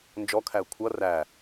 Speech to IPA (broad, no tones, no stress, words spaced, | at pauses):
nd͡ʒɔkʰæə̯ kʷʰʌ ræ